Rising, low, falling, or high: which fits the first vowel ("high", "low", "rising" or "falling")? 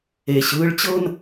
low